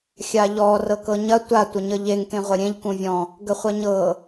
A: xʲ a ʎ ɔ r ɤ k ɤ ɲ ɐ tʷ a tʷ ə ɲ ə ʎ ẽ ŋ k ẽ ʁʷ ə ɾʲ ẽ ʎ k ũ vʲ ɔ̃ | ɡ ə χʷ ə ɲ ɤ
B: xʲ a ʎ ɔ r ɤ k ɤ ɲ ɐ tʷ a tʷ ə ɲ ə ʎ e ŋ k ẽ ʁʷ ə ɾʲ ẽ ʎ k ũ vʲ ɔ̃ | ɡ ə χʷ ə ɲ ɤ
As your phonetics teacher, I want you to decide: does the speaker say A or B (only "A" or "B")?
B